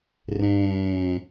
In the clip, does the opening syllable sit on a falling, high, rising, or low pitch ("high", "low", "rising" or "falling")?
low